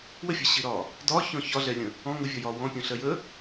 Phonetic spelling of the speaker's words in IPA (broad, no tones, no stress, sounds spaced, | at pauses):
w ə fʲ ɜ ɕ i ɾ ɒː | d ɒ ç ɔ̃ ç ɒ ɮ ɛ lʲ ə̃ | ɔ̃ ŋ ʊ vʲ ɒ j ɒː w ɔ̃ pʲ ɔ̃ ɬ ɜ j əː